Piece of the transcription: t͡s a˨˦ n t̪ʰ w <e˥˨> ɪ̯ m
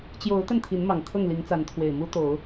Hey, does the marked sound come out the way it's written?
no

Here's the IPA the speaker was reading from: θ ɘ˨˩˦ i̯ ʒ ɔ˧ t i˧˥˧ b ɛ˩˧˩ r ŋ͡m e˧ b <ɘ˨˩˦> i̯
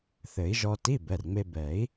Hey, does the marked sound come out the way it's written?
no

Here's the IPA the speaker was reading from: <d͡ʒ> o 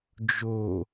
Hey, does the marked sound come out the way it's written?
yes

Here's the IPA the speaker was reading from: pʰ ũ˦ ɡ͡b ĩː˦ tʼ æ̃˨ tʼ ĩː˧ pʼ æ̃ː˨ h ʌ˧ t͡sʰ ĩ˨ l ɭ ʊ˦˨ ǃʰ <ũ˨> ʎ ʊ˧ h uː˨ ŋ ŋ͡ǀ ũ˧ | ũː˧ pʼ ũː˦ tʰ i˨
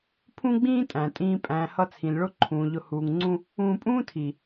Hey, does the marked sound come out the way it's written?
no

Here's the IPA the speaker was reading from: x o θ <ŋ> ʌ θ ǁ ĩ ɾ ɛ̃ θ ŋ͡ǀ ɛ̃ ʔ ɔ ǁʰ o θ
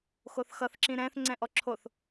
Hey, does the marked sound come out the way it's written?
no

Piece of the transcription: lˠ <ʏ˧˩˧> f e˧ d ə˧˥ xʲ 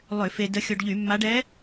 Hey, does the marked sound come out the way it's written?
yes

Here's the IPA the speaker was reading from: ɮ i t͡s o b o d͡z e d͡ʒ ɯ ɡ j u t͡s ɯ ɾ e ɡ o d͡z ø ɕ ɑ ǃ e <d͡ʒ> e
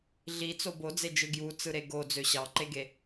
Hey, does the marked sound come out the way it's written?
no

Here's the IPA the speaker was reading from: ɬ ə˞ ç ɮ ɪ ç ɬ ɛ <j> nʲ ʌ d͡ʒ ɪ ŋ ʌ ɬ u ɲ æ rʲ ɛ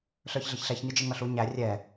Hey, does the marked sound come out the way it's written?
no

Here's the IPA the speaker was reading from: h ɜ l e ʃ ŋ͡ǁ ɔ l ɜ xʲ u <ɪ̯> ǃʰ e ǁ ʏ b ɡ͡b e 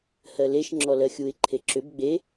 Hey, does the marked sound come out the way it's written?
yes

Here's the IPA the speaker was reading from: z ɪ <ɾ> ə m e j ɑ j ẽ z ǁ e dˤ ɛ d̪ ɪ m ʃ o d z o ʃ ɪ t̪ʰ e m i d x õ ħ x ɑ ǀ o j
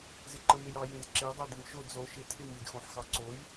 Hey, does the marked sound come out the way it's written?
no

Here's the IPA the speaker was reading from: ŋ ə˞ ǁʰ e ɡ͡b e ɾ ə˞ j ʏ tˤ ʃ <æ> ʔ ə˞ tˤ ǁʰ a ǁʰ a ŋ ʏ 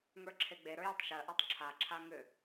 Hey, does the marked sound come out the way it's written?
no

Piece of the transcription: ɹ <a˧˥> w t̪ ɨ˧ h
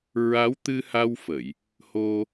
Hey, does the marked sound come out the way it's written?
yes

